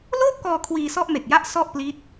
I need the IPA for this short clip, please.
loː˥˩p̚kɔː˧ kʰwiː˧sɔ˥˩ʔ me˨˩k̚ja˥˩ʔ sɔ˥˩ʔpli˦˥t̚

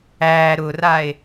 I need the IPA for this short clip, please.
æ ɾʊrae̯

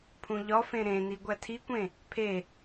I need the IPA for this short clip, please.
pʰũʎɒfẽ ɾẽni ɡʷætʰikʷẽ | pʰe

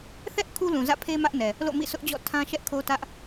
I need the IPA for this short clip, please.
θɛ˦ʔ kʰu˦lũ˨zä̰˦˨pʰe˦ mä˦ʔnɛ˨ | lo̰˦˨mḭ˦˨sʰʊ˦ʔd͡ʑɔ̰˦˨ tʰã˦ʃɛ˦ʔkʰo˦ tä˦ʔ

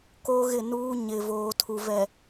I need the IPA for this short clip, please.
koː˦ɣɪ˦˨nuː˦ ɲɪ˨voː˨ tʰu˨vɛ˨

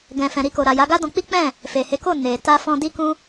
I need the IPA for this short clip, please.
ɡɛ̃˨fɛ̃˨ɾi˧ko˨ ɾa˨ja˨˦ɡa˦dɔ̃˧ k͡pi˦k͡pɛ̃˦˨ | fe˨he˨˦ko˦˨ ne˨ ta˧fɔ̃˧ di˦kũ˦

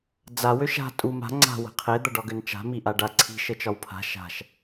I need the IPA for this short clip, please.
d͡za wøʃa̤ tʼu ma̤ ŋ͡ǀa̤ wə̤qʰe d̪ɐɖɒɡønt͡ʃa̤ miʔaɖa ǀʰi̤ ʃət͡ʃɒwpʰa̤ ʃa̤ʃ

